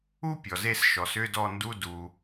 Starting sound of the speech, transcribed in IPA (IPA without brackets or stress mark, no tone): u